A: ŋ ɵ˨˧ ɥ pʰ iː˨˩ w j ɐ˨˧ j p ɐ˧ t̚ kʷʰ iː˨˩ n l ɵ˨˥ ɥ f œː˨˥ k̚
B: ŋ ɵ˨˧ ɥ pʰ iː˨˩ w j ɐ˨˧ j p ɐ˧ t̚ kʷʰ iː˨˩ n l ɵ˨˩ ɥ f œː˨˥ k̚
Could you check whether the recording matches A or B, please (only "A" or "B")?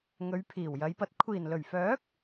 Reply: B